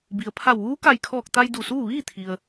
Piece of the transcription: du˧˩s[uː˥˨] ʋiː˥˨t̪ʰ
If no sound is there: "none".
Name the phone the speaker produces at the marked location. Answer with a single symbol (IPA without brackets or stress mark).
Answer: uː˥˨